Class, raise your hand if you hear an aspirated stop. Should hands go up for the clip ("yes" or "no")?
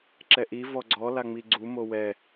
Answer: no